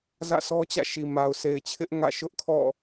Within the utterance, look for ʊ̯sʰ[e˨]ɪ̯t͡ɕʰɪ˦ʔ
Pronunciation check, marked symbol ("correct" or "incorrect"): correct